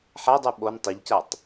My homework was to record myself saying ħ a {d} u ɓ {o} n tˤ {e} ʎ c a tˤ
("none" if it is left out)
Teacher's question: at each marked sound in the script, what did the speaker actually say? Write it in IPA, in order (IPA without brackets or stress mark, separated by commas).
dˤ, o, e